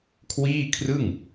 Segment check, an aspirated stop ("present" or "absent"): present